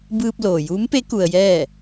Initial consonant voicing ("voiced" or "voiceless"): voiced